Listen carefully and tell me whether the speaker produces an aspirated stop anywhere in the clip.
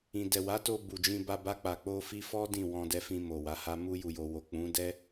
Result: no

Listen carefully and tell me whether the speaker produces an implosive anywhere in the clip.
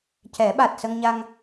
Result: yes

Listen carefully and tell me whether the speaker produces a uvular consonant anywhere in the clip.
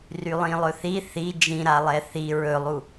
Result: no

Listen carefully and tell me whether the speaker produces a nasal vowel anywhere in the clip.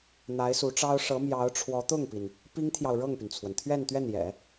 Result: no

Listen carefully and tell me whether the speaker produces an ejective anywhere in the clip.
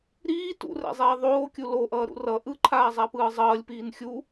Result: no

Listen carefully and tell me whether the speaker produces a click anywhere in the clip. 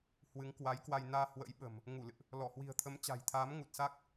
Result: no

